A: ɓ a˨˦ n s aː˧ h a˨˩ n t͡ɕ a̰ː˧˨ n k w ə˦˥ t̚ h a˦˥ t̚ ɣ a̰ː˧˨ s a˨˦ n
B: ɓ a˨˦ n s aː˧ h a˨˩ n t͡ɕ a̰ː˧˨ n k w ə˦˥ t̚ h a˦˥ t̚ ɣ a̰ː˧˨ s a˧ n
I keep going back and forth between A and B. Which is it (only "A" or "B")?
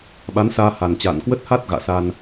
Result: B